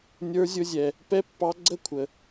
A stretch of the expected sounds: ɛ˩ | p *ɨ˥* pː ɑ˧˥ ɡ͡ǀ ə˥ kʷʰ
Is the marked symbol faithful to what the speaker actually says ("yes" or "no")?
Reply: no